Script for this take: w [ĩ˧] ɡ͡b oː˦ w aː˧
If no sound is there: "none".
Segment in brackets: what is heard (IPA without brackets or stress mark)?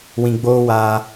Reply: ĩ˧